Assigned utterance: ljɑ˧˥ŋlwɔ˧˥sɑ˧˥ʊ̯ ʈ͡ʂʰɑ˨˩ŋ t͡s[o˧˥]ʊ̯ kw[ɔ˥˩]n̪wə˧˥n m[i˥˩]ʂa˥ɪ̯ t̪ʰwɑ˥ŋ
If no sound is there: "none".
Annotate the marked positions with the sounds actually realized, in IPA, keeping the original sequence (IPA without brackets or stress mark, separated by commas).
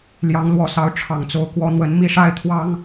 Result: o˧˥, ɔ˧˥, i˥˩